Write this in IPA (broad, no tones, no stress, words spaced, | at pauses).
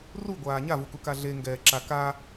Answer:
ruɡʷaː ɲavukuka ɮeŋɡɛːǁa ka